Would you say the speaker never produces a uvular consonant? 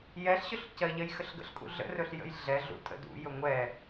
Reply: yes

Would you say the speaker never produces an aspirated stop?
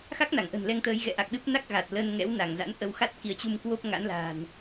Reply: yes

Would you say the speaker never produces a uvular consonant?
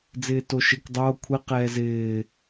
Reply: no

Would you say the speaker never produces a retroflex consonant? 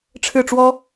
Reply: no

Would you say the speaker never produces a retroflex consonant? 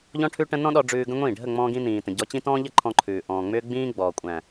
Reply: no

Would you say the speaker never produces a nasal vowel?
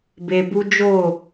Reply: yes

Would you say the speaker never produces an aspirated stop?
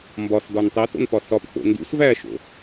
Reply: yes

